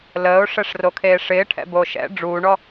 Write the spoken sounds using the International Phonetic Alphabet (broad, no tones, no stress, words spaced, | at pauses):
ləːʊ̯ʂɛʂrokʰeː ʂɪːʈʰɛ̰bo ʃɛ̰ ɖ͡ʐuːɳɔ